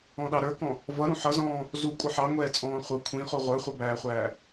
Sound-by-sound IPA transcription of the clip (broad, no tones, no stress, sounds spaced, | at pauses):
ɔ̃ ɗ ɑ ɾ ə˞ k ɔ̃ | v ʌ ɾ ũ ħ ʌ z ɔ̃ː | z u kʷʼ ʌ ħ ɑ ŋʷ ɛː t͡sʼ ɔ̃ː χʷ ʌ kʷʰ ĩ χ u ʁʷ ə˞ χʷ ʌ b æː χʷ æː